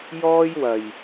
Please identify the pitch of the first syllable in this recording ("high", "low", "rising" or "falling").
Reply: high